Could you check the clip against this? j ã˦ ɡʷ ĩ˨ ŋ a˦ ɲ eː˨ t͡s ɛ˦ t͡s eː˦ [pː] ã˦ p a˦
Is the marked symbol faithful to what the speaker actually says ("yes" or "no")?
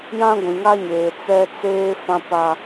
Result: no